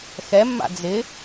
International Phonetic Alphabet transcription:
xɛmːa̰ d͡zɪ

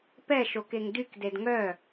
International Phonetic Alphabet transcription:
pɛʃokeŋ dykded ŋœ

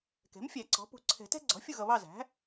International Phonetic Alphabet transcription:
kɛ̤˩˥mfʲæ˨˩˦ǀɔ̤˩˥ pṳ˨ ǀʰɛ̤˨˩˦tɛ̤˦ɡ͡ǀɔ̤˩˥ fʲu˦˨ɣʌ˨βɑ˦˨ zæ̤˩˥

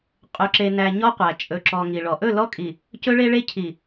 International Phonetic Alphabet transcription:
qʼɵ˨ǁe˨næ˨ ɲɔ˦qʷæ˨ t͡ʃʼɵ˨ǁɔ˨ ŋi˨ɭɔ˨ ʔɵ˦˨lɔ˦kʼi˨ | cɵ˦ɭe˦ɭe˦ cʰi˨

